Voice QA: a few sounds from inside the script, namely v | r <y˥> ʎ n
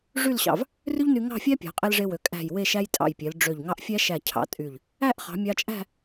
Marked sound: correct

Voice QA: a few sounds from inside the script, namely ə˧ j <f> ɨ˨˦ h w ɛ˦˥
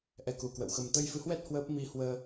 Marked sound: correct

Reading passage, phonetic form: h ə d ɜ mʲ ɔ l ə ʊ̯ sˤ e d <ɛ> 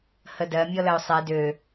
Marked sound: incorrect: ø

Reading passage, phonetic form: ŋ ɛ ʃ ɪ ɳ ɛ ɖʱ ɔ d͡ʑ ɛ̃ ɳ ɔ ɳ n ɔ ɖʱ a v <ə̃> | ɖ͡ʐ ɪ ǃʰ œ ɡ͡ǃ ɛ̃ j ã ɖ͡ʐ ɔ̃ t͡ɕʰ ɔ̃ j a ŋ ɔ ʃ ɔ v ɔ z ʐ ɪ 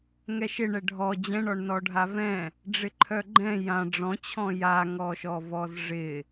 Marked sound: incorrect: ɛ̃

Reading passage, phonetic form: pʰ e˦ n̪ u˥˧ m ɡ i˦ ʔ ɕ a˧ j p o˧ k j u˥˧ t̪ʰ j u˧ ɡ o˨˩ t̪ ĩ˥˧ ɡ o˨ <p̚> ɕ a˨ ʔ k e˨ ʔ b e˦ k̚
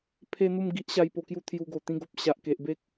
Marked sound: correct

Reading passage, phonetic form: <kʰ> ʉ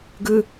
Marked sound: incorrect: ɡ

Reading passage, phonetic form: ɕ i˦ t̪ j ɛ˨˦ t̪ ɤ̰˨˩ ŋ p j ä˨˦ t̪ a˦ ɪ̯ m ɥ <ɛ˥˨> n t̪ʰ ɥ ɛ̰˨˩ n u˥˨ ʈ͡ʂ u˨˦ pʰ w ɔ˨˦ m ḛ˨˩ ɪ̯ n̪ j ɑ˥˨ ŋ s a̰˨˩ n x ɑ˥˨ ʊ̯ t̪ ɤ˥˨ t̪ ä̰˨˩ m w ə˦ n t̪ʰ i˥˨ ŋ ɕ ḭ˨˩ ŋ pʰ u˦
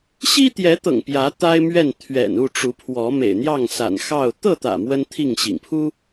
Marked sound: correct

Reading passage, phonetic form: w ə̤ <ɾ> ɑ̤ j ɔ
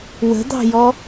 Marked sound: incorrect: d̪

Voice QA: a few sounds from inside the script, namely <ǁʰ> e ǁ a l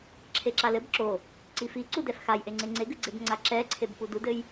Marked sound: correct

